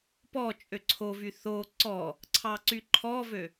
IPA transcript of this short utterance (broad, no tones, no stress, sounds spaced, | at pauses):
p ɔ t͡ʃʼ ø ǀʰ o v y θ o ǀ ɔ | ǀʰ ɑ ǀ y ǃʰ ɔ v ø